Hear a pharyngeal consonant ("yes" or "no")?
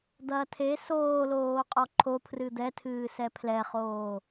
no